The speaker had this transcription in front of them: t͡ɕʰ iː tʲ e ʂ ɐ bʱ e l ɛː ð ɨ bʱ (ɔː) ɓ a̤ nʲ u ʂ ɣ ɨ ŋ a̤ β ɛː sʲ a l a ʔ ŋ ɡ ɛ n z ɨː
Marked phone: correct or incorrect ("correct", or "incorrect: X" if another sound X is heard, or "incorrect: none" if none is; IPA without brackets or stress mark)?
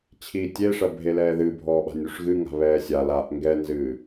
correct